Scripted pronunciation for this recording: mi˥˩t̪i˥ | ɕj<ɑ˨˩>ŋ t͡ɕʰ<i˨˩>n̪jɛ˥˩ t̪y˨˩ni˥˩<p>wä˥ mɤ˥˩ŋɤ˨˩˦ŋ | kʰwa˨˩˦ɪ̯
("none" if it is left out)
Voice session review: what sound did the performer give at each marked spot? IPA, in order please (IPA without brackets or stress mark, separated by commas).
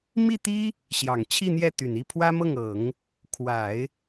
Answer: ɑ˨˩, i˥˧, pʰ